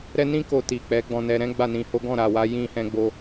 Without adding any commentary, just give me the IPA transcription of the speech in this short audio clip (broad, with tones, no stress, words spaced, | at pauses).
ɾɛ˦ nĩ˦ ko˧ti˨ k͡pɛ˨˦ɡ͡bɔ̃˧nɛ˧ ɾɛ̃˦ ɡ͡ba˦˨nĩ˧ho˦ ɡɔ̃˦˨ɾa˨wa˨˦ jĩ˧hɛ̃˧ ɡ͡bo˧